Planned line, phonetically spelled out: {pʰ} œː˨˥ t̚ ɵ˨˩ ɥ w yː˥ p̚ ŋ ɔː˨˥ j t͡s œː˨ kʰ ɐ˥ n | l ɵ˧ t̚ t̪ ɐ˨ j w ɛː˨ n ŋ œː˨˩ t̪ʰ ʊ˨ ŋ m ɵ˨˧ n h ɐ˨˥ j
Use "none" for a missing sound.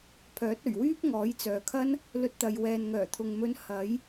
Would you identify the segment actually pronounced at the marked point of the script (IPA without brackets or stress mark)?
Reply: pʰ